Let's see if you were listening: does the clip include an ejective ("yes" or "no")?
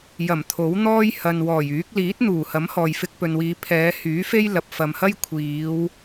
no